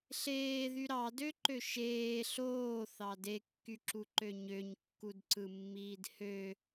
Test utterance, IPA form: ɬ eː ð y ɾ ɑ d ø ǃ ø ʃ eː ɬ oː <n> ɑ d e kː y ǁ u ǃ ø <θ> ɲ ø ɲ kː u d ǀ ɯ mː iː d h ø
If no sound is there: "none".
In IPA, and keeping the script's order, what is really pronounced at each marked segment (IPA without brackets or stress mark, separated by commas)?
θ, none